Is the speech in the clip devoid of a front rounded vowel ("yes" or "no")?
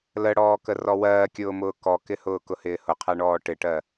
yes